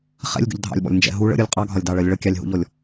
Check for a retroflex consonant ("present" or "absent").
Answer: present